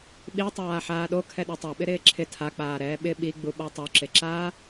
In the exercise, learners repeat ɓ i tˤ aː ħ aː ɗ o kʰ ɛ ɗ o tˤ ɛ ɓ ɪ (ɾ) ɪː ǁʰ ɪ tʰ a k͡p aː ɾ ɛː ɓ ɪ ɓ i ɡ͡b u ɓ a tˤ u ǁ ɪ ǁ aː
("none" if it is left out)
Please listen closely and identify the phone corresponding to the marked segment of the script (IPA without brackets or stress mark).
ɾ